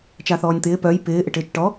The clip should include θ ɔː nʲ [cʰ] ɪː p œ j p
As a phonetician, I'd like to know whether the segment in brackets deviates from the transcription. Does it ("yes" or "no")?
yes